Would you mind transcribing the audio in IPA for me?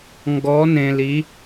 ŋ ɡ ɔ˧˥ n ẽ˧ l i˧˥

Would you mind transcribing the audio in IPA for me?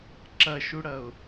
ǁ ɐ ʃ u ɽ ɐ ʊ̯

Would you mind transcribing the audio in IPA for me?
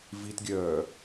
v i t ɡʲ œː

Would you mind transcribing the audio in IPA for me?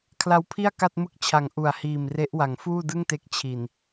kʰ l a˧ w pʰ i˥˩ a̯ k a˥˩ t̚ m ɯ˥˩ k̚ t͡ɕʰ a˨˩ ŋ ʔ u˨˩ a̯ h iː˨˩ m r e˦˥ ʔ w a˩˦ ŋ f uː˥˩ d ɯ˥˩ ŋ t e˦˥ k̚ t͡ɕʰ i˨˩ n

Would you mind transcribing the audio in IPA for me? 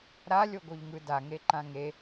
ɾ a lʲ o ɡ o ʎ ŋ ɯ d a ŋ e ǃ ã ŋ e

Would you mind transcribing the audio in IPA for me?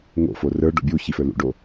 ŋ o̰ f o r ə˞ ɖ o̰ bʲ u ç i f ə˞ l ṵ ɖ o

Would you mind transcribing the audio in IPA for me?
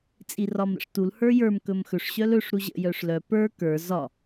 t͡sʼ i r ɒ m ɾ ə̰ ʂ t u l h ə˞ j ə˞ m k ɵ m x ɵ ʂ ɕ œ l ɵ ʂ ɾ u ʑ ə̰ j œ ʂ l œ p ə˞ k ə˞ z ɒ

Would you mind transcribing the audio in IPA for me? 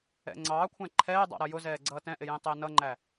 ɛ̰ ŋ͡ǀ ɑː kʷʰ æ̃ ǃʰ ɛː dˤ ɑ̰ ɾ ʌ j ʊ z ɛː ɡ͡ǀ ʌː t ɛ̃ ʔ ɪ j ĩ tˤ ɪː n ʌ ŋ͡ǃ æ

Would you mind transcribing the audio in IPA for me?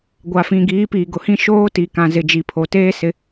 ɡʷ a˨ f ĩ˨ ɡ iː˨˦ p iː˨ ɡ ʊ˨ h ĩ˦ ʃ oː˦ t i˨ k ã˨ z ɪ˨ d͡ʒ i˨ pʰ o˨ t eː˦ s ɪ˨˦

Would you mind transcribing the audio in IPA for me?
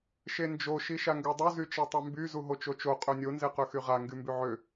ʃ e n d͡ʒ o ʃ i ʃ a ŋ ɡ ø dˤ u z y t͡ʃ e tˤ ø m b y z u ɦ o t͡ʃ o t͡ʃ o qʼ ø nʲ o n z e q ø x y ʁ a ŋ ɡ y m b y ʕ ø

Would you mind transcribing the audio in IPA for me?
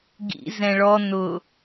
ɡ ḭ z ɛ̃ ɭ ɔ n ʊ

